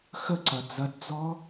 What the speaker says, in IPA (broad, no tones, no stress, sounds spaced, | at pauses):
x ə ǀ ɐ d͡z ɐ d d͡z ɔ